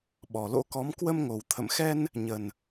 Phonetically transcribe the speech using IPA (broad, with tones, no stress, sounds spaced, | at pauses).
ɓ ɔ˨˩ l o̰˧˥ k ɔ˨˦ m k w ə˧ m ŋ o˨˩ w t̪ʰ ə̰˧˨ m x ɛ˧ n | ɲ ə˨˩ n